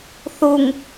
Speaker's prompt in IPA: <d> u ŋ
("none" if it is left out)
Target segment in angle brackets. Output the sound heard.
θ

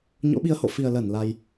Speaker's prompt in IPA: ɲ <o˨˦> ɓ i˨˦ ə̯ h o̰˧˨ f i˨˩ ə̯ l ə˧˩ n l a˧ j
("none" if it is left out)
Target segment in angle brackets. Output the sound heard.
o̰˧˥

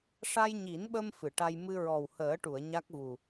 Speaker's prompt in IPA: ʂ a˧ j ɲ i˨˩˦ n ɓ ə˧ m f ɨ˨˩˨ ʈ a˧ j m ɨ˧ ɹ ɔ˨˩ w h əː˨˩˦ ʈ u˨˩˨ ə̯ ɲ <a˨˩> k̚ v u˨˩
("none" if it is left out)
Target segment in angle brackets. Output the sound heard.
a˦˥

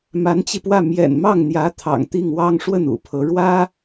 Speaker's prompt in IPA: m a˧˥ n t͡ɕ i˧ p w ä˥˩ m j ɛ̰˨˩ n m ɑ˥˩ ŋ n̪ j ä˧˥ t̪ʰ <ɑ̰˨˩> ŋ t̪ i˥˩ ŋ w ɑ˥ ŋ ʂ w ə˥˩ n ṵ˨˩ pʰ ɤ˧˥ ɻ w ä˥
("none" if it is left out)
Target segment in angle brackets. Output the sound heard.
ɑ̰˨˩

